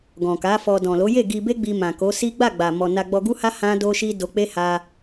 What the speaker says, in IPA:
ɡ ɔ̃˨ k a˨˦ f ɔ˧ d ɔ̃˨ l o˨˦ j e˦˨ ɡ i˧ b e˦ ɡ͡b i˧ m ã˨ k o˨˦ s i˦ ɡ͡b a˦˨ ɡ͡b a˨ m ɔ˨ n a˧ ɡ͡b ɔ˧ ɡ u˦ h a˦ h ã˦ d o˦ ʃ i˦ d o˧ k͡p e˦ h a˧

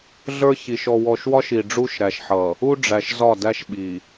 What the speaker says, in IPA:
ɮ ə˞˦ ç i˨ ʃ ɔ˨ w ɔ˨ ʃ w ɒ˦ ʃ i˨ ɖ͡ʐ u˦ ʃ ɾ æ˨ ʃ ħ ʌ˨ | u˦ ɖ͡ʐ æ˨ ʃ z ɒ˦˨ d æ˦ ʃ ɓ i˨

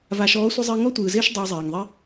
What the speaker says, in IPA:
v a˨ ʃ ɔː˨˦ sʷ ɪ˧ zˤ ɪː˧ ŋ ɔ˦ tʷ ɯː˨ z ɪː˦ ʃ dˤ ɪː˧ zˤ eː˨ ŋ ðˤ i˦

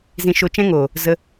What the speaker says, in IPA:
z ĩ˧ ʃ o˧ t͡ʃ ɛ̃˦ ŋ oː˨ | z ə˧

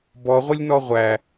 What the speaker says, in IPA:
b ɔ ʁʷ ə lʲ n ɔ ʁʷ æ

